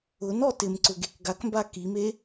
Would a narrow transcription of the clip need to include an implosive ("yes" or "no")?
no